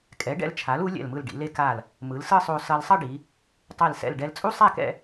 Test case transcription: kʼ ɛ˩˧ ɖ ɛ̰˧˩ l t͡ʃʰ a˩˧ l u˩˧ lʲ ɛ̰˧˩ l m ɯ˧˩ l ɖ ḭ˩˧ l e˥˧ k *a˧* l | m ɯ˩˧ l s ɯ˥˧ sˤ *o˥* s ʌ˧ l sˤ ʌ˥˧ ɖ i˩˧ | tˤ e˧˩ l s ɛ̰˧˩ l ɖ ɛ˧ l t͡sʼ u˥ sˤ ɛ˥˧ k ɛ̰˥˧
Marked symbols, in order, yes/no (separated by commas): no, no